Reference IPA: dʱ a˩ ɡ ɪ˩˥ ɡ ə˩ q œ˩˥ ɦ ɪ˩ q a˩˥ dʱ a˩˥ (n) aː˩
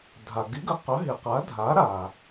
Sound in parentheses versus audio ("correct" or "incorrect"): incorrect